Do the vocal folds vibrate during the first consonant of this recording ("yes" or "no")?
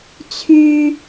no